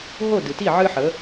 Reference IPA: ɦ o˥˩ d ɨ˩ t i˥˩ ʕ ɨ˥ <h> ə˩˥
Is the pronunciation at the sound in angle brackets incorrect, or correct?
incorrect